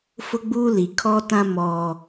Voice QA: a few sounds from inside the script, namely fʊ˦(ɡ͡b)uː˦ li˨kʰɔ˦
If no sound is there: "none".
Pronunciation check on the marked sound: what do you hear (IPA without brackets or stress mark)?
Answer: ɡ͡b